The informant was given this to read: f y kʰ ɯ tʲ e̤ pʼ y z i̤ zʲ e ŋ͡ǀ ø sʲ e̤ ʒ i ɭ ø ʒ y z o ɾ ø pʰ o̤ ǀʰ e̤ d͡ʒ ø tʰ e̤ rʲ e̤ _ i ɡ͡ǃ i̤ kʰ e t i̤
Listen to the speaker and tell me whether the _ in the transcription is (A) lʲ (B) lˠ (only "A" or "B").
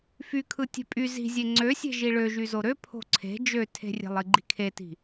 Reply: B